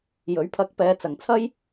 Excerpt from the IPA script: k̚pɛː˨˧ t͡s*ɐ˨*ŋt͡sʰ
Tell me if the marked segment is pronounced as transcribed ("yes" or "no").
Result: yes